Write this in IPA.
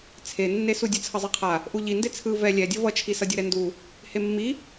t͡sʰ e nː e s u dʲ ɯ t͡sʰ ʌ zˤ ɯ qʰ a | ʔ u ʎ i n d e t͡sʰ ɯ v ɛ lʲ ɛ dʲ ʌ v ʌ t͡ʃʰ i s ʌ dʲ ɯ ɾ ɛ n d u | h e mː i

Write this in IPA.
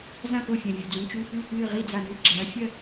z ã˥˨ p o˥˨ fʲ ɐ̃˩˧˩ vʲ u˧˩ d͡z ũ˨˦ t͡ʃ u˧˥˧ p ʉː˥˨ k ɨː˥˨ ʁ i˥˨ d͡z a˧˩ n ʉ˧˥˧ ɡ͡ǁ ɐː˨˦ fʲ ɐ˥˨

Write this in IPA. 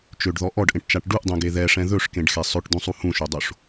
t͡ʃ ø ɖ ð ɔ ʔ ɔ ɖ ʔ ẽ ʈ t͡ʃ a ʈ ɖ u ʔ dˤ ẽ ɡ e ð ɛ ʂ ɛ̃ ð ɵ ʂ k ẽ ɖ x e sˤ ɵ ʈ d̪ ũ sˤ u h ũ ʃ ø dˤ o ʂ

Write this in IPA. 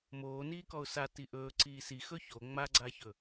m oː n iː k ɔ ʊ̯ s a t i ʔ ɵː ǀ iː s i x ɵ ç o ŋ͡m a ɡ͡ǀ a ç ɵ

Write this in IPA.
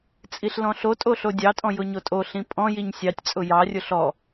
t͡sʼ i ɬ l ɔ̃ ɬ o tʼ o ɬ o dʲ ɑ tʼ ɔ̃ j ʊ ɲ o tʼ o ɬ ĩ pʼ ɔ̃ j i ɲ sʲ ɑ tʲ t͡sʼ ʊ j ɑ rʲ ʊ ɬ ɔ

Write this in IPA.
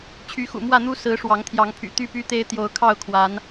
t͡ɕʰ y˨˦ x ṵ˨˩ m w ä˥˨ n̪ u˦ s ɹ̩˨˦ ʂ w ɑ˨˦ ŋ t̪ʰ j ɑ˨˦ ŋ pʰ y̰˨˩ t̪ y˦ p y˦ t̪ e˦ ɪ̯ t̪ j o˨˦ ʊ̯ kʰ ɑ˥˨ ʊ̯ kʰ w a˨˦ n

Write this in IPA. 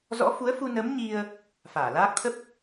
z ɔ̰˧˥ f u˨˦ ə̯ f u˧ n ə˨˦ m ɲ i˧ ə̯ | f aː˧˩ l aː˦˥ k̚ t̪ʰ ə˦˥ p̚

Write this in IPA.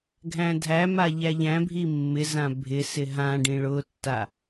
ɡʱ æ̃ dʱ æ m a ʎ æ ʎ æ̃ bʱ i mː ɪ z ã bʱ ɪ s ɪ ɦ ã ɖ ĩ ɭ ʊ tː a

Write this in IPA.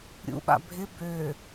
ɾʲ ṵ ɓ a̰ bʱ ɪ b ø

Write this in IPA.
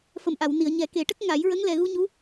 f ə˨˩˨ m ʔ a˨˩˨ w n i˨˩˨ ə̯ ɲ ɛ˨˩˦ k e˨˩˦ ʈ ə˦˥ k̚ ŋ a˨˩˦ j ɹ ə˧˥ ŋ l ɛ˨˩ ɣ u˧ ɲ u˧˥

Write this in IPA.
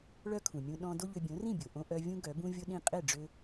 ɭ œ˥ kʰ ũ˩ mʲ ũ˧ ɗ ɔ̃˧ d o˥ ʎ ø˧ bʲ õ˩˥ r ĩ˥˩ bʲ o˩ ʔ õ˧ ʔ œ˧ vʲ ũ˥ ɡ œ˩˥ b ũ˥ vʲ o˥ ɗ ĩ˥˩ qʼ e˥˩ ɖ͡ʐ ø˧

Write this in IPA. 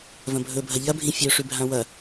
v ɐ̃ bʱ ɵ bʱ ɐ ʎ ɐ bʱ ĩ fʲ o ʂ ʉ bʱ ã w ɐ

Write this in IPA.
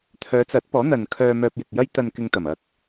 t̪ʰ œː˨˧ t͡s ɐ˨˥ t̚ p ɔː˨˥ n̪ ɐ˨ n kʰ œː˧ m œː˧ p̚ j ɪ˨ k̚ j ɐ˥ j t̪ ɐ˧ n k ɪ˧ ŋ t̪ ɐ˨˩ m ɐ˧ k̚

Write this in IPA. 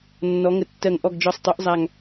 nː ɔ˩˧ ŋ ə˨˩ tː ɜ˨˩ ŋ ʔ ɔ˨˩ ɡ d͡ʒ ɔ˨˩ sˤ tˤ o˩˧ ʔ zˤ a˨˩ ŋ

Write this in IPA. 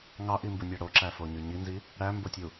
ŋ ɑ ʔ i m b u nʲ ɑ ɽ o ǁ æ f o ɲ y ɲ i n z i | ɽ æ m b o tʲ u

